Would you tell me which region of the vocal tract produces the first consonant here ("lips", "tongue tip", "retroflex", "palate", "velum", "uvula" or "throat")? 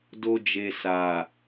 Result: tongue tip